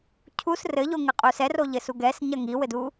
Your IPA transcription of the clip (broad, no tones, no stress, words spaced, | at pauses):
cʰus rɘʎoŋɘqʼu sɛroʎɘsu ɡɛsɲɐ ŋiwɘdu